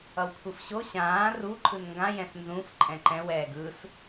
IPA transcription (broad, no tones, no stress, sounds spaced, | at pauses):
ʌ w kʷʰ ɯ f ɕ o ɕ ãː r u ǃʰ ɯ n ŋ ɡ ã j ɛ̃ s n z ũ f ǃʼ ɛ̃ ǃ ɛ̃ w ɛː ɡ ɯ s